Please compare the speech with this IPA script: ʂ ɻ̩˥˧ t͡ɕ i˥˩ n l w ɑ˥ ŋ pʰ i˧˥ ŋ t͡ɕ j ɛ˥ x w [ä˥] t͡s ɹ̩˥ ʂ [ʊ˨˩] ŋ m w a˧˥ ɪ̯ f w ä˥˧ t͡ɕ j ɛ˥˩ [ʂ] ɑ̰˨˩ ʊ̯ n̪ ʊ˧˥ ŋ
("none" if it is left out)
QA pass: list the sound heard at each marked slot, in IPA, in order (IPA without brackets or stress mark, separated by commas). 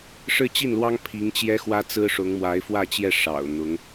ä˥, ʊ˧˥, ʂ